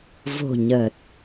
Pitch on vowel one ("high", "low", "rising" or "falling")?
low